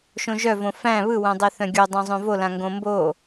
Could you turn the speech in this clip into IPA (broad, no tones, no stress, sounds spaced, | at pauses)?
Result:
ʃ õ ʒ œ v õ f æ̃ β ɯ w œ̃ dˤ e θ œ̃ ɡʲ o dˤ õ zˤ õ v o l ã ŋ ɡ õ m b o